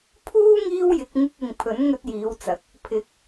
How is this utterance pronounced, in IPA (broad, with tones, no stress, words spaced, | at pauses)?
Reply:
pʰuː˥ ŋiː˥wjɪ˨˥k̚ ŋɪ˧k̚ɪ˨ŋ pʰɵ˨˥nŋɵ˧t̚jiː˨˧wt͡sɐ˨˥k̚ | pʰɪ˨˥k̚